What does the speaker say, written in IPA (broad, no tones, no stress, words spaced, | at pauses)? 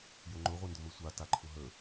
jʊŋ͡ǃʊ ʁʷendʊmɘsʷa taǃʰʊɦə